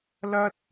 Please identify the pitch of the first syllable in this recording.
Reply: high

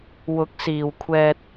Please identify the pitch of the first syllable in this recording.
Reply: rising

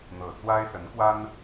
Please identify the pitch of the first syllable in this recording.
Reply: low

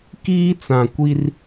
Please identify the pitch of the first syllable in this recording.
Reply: high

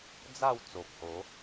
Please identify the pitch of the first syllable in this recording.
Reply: falling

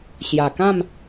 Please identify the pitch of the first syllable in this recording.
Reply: low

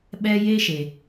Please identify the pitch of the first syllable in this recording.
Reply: high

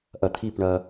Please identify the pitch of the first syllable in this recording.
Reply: low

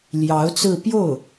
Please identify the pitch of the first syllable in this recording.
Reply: rising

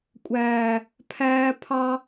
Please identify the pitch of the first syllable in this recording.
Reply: low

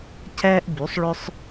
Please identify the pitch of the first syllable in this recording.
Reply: high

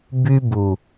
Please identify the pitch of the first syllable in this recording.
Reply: high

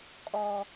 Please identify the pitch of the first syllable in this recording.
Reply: low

